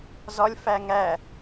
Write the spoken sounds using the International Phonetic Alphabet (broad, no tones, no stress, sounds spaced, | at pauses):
z ɒ lʲ f æ ŋ æ